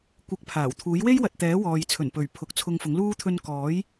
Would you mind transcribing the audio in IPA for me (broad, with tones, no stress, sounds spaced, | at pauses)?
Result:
kʷ ɪ˨˥ k̚ pʰ aː˨˩ w t̪ʰ uː˨˥ j w e˥ j w ɐ˨ t̚ t̪ ɛː˨˥ w ɔː˨ j t͡sʰ ɵ˨˩ n p ɵ˨˩ ɥ pʰ ʊ˨˥ k̚ t͡sʰ ʊ˧ ŋ f ʊ˨˥ ŋ l uː˥ t̪ʰ ɵ˧ n k ɔː˨˥ j